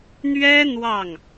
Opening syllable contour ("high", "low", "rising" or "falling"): high